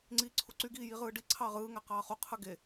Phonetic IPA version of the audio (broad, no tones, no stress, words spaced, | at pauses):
ŋ͡ǀiːǀʰuǀy ɡiːjiʁɯːɖi ǀʰɑːʁɯː ŋæqɑːχu qʰɯɡe